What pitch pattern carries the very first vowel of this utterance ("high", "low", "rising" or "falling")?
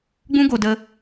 high